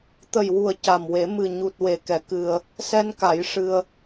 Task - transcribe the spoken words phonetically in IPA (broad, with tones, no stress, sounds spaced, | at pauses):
t̪ ə˨˩ j w u˨˩ ə̯ c a˨˩ m w e˨˩˦ m ɨ˨˩ ɲ u˨˩ t̚ w e˨˩˨ k ɛ˨˩˦ k ɨ˧ ə̯ | s ɛ˧ n k a˨˩˦ j ʂ ɨ˧ ə̯